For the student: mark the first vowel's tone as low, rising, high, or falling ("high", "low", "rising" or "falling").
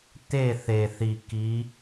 falling